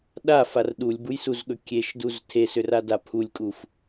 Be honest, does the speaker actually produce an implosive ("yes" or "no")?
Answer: yes